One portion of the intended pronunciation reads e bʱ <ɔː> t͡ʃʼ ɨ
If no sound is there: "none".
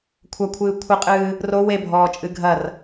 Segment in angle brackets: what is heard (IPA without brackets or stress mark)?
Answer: ɔː